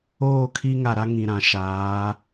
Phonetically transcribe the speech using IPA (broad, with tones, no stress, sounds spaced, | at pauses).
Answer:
oː˦˨ kʰ i˦ ŋ a˨ ɾ a˦ ŋ ĩ˨ ɾ ã˨ ʃ aː˨˦